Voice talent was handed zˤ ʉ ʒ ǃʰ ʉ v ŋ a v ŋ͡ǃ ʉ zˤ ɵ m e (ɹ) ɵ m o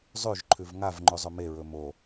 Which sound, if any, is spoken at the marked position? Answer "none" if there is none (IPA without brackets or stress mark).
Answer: ɹ